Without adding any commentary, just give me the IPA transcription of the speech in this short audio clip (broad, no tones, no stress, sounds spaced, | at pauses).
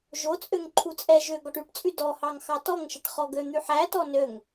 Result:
ʒ o t͡sʼ ø ŋ ǃʰ u t͡sʼ ɛ ʒ ø ɡ ɔ ʈ y ʈ t͡sʼ y d ɔ h ɑ ŋ x ɑ t ɔ ŋ ʃ ɛ ʈ χ ɔ ɡ ø n̪ y ħ æ t ɔ n ø ŋ